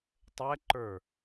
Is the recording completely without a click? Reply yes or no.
no